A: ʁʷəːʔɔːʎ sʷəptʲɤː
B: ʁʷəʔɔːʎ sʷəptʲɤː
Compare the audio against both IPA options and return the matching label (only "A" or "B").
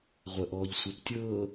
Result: B